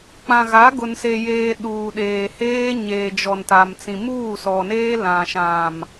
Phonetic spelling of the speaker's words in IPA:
k͡p ã˨ ɣ a˨˦ ɡ ʊ˨ n s e˨ j eː˨ ɗ uː˨ ɗ eː˨ h eː˦ ɲ eː˨ d͡ʒ ɔ˨ n t a˨ m t͡s ĩ˨ m uː˦˨ s ɔ˨ n eː˦ l ã˨ ʃ ã˨ m

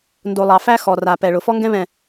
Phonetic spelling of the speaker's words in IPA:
n d o˨ lˠ ɑ˨ f æ˦ x ɔ˨ r a˨ p ɛ˨ ɭ ʊ˨ f ɔ˦ ŋ ɡ ɛ̃˦ β ɛ̃˨

